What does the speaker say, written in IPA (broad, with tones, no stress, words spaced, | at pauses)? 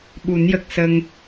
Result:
ɓu˨˩˦njə˨˩k̚sə˧ŋ